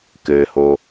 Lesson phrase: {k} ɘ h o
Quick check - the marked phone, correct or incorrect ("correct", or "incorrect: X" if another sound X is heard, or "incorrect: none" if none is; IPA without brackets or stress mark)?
correct